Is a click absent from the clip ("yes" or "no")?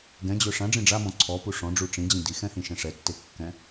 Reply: no